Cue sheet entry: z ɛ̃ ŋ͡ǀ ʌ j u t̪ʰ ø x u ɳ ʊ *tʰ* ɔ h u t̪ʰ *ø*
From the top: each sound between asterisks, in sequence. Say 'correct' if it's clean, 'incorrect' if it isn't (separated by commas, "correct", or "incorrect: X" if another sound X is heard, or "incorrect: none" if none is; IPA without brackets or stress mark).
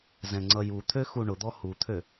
incorrect: d̪, correct